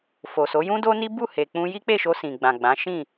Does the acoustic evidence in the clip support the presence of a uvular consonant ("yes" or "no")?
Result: no